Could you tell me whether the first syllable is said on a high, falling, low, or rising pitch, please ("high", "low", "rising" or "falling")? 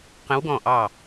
rising